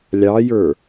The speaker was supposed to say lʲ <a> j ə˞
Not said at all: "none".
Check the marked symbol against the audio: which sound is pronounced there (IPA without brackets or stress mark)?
ɑ